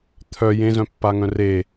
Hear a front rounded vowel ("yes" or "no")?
yes